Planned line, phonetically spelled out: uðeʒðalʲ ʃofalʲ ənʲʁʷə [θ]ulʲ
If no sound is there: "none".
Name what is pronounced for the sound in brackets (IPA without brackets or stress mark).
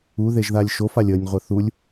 θ